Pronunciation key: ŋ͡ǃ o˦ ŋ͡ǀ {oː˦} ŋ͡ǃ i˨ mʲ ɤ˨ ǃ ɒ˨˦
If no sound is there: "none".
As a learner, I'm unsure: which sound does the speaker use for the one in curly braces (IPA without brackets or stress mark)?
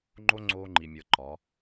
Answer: oː˦